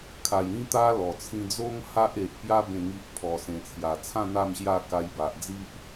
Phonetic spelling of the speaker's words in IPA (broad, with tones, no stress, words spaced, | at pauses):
kʰa˨˩j ĩ˧t̪a˧ lɔ˨˩t͡sʰĩ˧d͡zo˦ŋ ha˦ʔe˨ʔpja˦ bẽ˥˧ŋi˦ʔpʰɔ˧ sẽ˨˩t͡sʰja˨˩t͡sʰã˥˧ n̪a˥˧mɕja˥˧ ka˧jba˨ʔd͡zi˦ʔ